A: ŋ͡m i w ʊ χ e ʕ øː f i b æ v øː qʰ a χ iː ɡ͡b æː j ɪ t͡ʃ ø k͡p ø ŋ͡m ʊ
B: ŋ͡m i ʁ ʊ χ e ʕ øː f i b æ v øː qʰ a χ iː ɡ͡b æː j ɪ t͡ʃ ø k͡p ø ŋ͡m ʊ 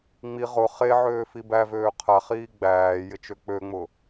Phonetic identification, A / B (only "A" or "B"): B